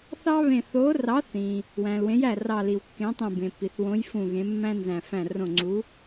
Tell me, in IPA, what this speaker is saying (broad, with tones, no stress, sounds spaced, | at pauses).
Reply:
θ ɑ˥ β ẽ˧˩ θ o˨˥ r ɑ˨˥ θ ĩ˩ | w æ̃˩ l w ẽ˨˥ j æ˧˩ r ɑ˧˩ l i˩ w kː ẽ˨˥ tˤ ẽ˧˩ b ẽ˩ p i˩ θ w õ˨˥ j f ũ˧˩ ɣ ẽ˨˥ mː æ̃˥ n z æ̃˧˩ f æ̃˧˩ r õ˧˩ ŋ͡ǀ u˨˥